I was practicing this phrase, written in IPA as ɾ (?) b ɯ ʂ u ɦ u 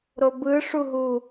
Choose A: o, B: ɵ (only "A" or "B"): A